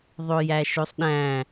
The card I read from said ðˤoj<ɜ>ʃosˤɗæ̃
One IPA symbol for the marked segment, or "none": æ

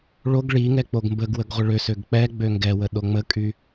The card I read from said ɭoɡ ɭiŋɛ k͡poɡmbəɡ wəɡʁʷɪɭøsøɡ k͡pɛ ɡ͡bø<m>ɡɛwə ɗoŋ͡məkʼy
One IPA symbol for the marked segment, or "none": ŋ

